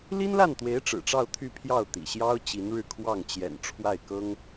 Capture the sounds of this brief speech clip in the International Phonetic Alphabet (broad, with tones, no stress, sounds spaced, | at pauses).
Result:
l i˥ n l a˥˩ n t̪ w e˧˥ ɪ̯ ʈ͡ʂ ɻ̩˨˩ ʈ͡ʂ ɑ˥˧ ʊ̯ t̪ʰ y˥˧ pʰ j ɑ˥˩ ʊ̯ t̪ ḭ˨˩ ɕ j ɑ˥ ʊ̯ t͡ɕ i˧˥ n ɻ ɻ̩˥˧ kʰ w ɑ˥˩ ŋ t͡ɕ j ɛ̰˨˩ n ʈ͡ʂʰ w a˥˩ ɪ̯ k ɤ˥ ŋ